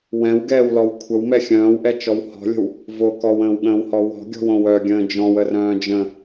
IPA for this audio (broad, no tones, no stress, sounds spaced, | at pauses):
w ɛ̃ w ɡ ɛː w l ɔ w kʷʰ ə w m ɛ xʲ œ̃ː w ʔ ɛ t͡ʃ ɔ w h ɔ̤ lʲ ə̤ w | v o k ɔ w ə̃ː w ɠ ə̃ː w h ɔ w ɔ̤ ɡʲ ɔ̤ w õ w œ ɡʲ ə̃ː d͡ʒ ɔ̃ w ə r œ̃ː d͡ʒ ə̃